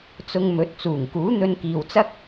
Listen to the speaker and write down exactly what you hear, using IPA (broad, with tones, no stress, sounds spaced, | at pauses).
t͡s ʊ˧ ŋ m ɵ˨˥ t̚ t͡s uː˨˩ ŋ k uː˨˥ n̪ ɵ˧ n k iː˨ w t͡s ɐ˥ k̚